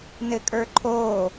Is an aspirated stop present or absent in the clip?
present